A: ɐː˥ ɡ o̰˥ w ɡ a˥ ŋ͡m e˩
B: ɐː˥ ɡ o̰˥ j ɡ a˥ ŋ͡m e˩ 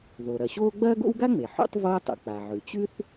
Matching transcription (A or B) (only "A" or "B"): A